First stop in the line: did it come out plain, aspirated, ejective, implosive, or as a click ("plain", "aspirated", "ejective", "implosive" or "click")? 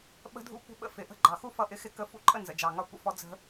implosive